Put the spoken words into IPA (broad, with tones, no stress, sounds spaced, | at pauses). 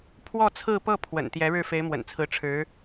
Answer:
pʰ w ɔ˥˧ t͡sʰ ɹ̩˥˧ p ɤ˥˩ pʰ w ə̰˨˩ n t̪ j ɛ˧˥ ɻ ɻ̩˥˩ f e˧˥ ɪ̯ m w ə̰˨˩ n t͡sʰ ɹ̩˧˥ ʈ͡ʂʰ ɻ̩˧˥